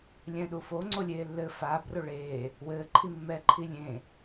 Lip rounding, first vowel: unrounded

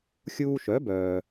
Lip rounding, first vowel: rounded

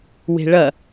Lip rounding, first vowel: unrounded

